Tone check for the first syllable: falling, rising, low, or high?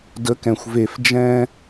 rising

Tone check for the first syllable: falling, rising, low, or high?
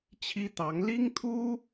high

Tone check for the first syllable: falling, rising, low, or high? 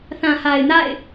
low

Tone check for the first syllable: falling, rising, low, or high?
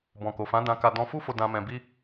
low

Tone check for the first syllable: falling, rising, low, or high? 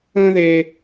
high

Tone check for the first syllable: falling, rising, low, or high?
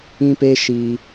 high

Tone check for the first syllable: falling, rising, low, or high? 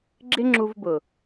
high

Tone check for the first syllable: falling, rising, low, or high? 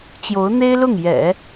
rising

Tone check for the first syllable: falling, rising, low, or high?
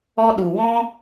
high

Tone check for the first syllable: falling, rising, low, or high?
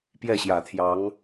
falling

